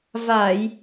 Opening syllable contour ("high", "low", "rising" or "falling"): low